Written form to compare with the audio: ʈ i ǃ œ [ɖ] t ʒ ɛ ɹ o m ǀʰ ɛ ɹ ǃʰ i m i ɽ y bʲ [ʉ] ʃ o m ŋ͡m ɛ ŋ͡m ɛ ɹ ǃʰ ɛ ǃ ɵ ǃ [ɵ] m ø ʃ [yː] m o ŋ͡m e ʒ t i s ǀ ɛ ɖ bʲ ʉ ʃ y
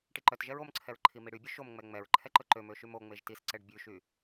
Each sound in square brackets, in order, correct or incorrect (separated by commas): incorrect, correct, incorrect, incorrect